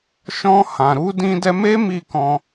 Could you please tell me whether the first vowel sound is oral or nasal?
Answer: nasal